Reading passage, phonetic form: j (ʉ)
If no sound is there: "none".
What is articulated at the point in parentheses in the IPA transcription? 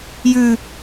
ʉ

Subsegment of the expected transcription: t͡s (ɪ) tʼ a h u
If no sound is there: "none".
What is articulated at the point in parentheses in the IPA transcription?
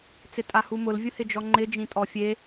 ɪ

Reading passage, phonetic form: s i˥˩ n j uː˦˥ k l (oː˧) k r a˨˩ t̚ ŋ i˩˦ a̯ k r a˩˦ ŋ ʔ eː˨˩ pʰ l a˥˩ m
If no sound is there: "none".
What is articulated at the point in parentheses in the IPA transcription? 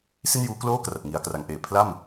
oː˥˩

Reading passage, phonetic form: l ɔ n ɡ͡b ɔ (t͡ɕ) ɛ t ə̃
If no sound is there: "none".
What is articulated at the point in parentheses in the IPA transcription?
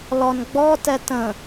t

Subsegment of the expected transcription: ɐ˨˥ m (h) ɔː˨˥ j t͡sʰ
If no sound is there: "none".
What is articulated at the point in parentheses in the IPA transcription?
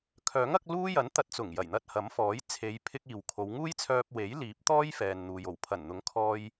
f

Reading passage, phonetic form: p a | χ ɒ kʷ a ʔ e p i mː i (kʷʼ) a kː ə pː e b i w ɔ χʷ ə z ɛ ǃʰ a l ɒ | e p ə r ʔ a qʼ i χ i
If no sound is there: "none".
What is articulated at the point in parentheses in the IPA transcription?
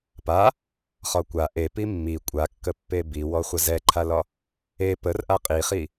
kʷʼ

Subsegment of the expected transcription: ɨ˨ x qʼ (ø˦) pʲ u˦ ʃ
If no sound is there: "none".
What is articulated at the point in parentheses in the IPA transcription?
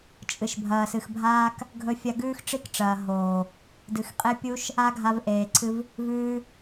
e˦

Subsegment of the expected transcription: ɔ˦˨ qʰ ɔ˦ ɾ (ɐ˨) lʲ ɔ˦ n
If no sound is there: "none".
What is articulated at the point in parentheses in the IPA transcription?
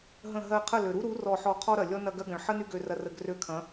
ɐ˨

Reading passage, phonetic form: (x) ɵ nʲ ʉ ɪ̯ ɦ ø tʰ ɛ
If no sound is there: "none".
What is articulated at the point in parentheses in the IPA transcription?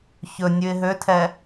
ç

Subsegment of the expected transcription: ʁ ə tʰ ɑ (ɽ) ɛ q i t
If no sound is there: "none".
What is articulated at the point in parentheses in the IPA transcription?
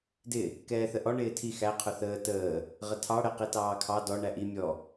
ɽ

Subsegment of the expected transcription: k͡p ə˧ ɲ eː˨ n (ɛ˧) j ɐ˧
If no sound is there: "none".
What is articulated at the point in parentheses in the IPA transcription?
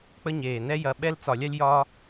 ɛ˦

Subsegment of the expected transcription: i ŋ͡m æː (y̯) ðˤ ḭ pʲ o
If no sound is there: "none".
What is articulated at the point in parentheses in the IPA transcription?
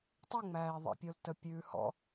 i̯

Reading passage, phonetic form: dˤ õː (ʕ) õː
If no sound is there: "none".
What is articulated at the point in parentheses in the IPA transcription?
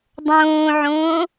ʕ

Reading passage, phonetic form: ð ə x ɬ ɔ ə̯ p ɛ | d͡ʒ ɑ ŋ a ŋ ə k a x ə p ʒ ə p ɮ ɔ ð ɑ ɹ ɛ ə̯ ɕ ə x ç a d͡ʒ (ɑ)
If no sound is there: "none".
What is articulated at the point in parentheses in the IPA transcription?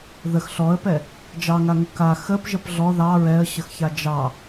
ɑ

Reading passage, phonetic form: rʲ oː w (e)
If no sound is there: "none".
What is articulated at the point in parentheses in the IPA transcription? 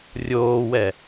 ɛ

